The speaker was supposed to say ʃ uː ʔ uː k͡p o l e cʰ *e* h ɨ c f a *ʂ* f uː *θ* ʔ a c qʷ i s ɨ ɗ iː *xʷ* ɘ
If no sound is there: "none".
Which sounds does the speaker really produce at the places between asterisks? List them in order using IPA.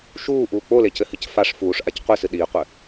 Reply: ɘ, ʂ, ʂ, qʷ

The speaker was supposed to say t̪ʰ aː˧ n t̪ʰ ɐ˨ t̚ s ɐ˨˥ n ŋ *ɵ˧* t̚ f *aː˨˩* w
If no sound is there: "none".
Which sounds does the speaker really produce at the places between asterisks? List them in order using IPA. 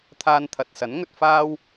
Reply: ɵ˧, aː˥

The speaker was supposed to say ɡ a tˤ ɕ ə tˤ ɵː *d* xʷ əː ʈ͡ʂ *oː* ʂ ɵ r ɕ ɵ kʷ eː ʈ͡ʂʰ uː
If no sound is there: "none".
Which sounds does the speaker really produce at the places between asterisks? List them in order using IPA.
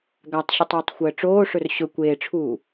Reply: tˤ, oː

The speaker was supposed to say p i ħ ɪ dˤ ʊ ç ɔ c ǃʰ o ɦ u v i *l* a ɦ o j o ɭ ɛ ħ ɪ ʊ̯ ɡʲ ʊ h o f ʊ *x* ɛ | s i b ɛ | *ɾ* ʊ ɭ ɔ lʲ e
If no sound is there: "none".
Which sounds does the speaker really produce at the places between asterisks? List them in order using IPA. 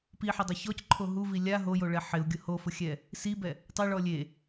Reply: lʲ, xʲ, tˤ

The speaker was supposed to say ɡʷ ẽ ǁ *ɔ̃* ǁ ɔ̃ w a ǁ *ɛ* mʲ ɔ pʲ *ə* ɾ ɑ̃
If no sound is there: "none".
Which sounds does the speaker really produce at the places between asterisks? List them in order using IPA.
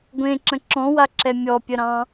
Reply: ə̃, ɛ, ə

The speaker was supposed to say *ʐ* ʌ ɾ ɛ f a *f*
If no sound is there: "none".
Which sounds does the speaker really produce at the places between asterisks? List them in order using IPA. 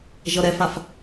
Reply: ʒ, f

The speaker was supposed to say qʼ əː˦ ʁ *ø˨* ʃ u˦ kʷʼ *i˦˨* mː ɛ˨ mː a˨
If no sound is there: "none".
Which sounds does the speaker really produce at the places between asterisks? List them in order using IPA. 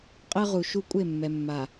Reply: u˨, e˦˨

